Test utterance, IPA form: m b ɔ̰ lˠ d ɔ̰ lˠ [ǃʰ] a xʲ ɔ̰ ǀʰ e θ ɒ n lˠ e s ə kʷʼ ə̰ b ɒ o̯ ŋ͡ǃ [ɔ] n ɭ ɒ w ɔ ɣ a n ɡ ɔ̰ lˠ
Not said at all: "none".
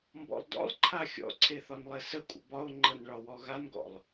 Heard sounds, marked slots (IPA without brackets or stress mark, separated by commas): ǃʰ, ɤ